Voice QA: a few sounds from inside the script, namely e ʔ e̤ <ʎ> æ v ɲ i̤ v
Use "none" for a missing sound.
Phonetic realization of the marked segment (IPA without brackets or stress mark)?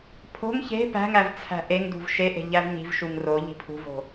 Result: ʎ